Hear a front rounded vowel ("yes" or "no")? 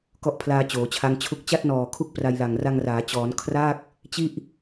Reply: no